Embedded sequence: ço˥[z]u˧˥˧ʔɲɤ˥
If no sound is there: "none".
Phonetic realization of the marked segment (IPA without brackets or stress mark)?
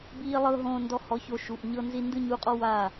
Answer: ʃ